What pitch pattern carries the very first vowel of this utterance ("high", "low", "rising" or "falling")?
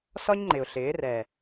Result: high